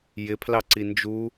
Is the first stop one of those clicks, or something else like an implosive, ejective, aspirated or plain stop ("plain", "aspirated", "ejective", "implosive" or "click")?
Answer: aspirated